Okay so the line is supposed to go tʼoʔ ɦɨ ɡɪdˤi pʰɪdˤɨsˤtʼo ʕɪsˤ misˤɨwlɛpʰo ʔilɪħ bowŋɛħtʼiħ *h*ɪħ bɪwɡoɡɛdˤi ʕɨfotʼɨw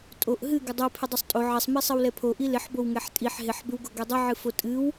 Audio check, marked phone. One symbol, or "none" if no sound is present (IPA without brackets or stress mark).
ɦ